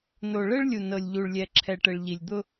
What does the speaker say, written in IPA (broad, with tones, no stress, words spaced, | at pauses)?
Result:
no˨ɭɘ˦ɭ lʲu˨nɤ˨lʲʎu˨ɭlʲɛ˨ ǁʰɛ˨ʈɘ˨ɭ ʎi˨lʲd̪ʊ˦